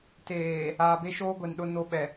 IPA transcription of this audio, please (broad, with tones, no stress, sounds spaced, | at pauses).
t eː˨ | aː˨ b e˦ ʃ oː˦ ɡʷ e˨ n ɗ ʊ˦ n o˦ ɓ ɛ˨